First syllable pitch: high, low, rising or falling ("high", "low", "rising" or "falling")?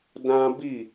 high